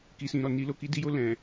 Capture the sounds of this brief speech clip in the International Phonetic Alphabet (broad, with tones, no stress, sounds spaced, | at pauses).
k i˨ s ĩ˨ ɾ ɔ˨ n i˧ l o˧ k i˧ d i˧ j o˧ l ɛ̃˨